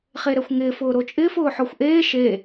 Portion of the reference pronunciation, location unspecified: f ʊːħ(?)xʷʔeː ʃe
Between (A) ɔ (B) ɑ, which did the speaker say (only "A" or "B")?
A